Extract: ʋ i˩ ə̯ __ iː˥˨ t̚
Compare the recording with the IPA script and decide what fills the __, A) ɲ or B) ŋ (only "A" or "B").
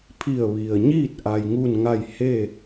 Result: A